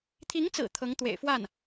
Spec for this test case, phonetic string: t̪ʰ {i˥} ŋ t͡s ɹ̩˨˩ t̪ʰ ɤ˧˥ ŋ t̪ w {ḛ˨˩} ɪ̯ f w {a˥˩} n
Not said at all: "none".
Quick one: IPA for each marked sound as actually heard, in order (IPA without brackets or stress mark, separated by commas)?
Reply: i˧˥, ḛ˨˩, a˥˩